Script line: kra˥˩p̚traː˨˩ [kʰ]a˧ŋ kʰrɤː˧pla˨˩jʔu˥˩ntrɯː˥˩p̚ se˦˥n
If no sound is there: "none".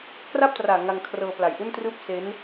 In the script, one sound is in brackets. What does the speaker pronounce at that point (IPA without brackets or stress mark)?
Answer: ŋ